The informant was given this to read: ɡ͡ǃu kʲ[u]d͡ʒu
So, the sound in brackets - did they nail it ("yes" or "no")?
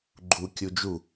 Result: yes